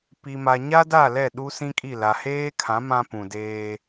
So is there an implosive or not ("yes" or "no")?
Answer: yes